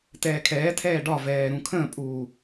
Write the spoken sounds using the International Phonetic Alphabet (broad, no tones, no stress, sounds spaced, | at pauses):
t ɛː kʰ ɛː tʰ ɛː ɖ ɒ v ɛː ɾ ũ kʰ ə̃ː pʼ uː